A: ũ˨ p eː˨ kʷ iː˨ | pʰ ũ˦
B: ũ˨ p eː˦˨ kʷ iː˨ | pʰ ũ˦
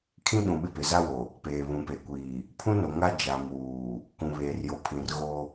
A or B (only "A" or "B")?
A